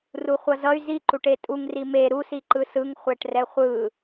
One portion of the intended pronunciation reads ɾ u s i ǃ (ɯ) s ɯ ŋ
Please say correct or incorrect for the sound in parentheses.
correct